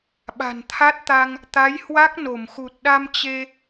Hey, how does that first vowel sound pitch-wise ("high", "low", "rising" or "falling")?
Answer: low